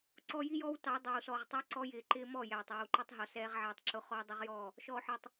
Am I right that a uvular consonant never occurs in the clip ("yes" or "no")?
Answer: no